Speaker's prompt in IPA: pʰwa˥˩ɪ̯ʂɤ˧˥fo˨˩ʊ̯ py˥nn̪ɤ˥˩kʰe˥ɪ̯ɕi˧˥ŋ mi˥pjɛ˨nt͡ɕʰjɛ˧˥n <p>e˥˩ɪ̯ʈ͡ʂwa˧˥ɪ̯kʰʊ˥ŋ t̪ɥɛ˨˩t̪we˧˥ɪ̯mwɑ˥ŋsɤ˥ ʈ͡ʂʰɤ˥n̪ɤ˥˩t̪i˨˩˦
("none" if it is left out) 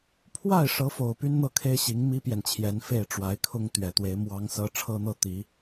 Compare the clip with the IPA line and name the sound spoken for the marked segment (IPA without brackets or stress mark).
f